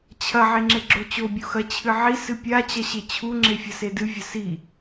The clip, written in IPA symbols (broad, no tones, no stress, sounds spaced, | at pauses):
t͡ɕʰ ɐ ʕ e ŋ͡ǁ e ɡ͡ǁ o t͡ɕ o bʲ u x ɐ t͡ɕʰ ɨ ʕ i s ɨ pʲ a t͡ɕ ɐ ɕ e t͡ɕʰ u ŋ͡ǁ e fʲ ɐ s e d ɨ vʲ ɐ s i